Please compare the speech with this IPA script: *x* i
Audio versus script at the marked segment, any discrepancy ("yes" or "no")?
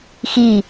no